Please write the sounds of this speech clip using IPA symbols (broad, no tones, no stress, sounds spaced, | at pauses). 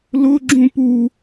l ʊ ɡ͡ǁ ũ p u